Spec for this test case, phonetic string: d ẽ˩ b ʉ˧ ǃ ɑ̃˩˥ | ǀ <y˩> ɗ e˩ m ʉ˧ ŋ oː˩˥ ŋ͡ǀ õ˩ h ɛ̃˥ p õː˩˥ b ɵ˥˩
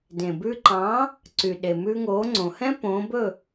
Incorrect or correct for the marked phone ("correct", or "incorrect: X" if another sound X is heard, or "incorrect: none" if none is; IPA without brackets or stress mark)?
correct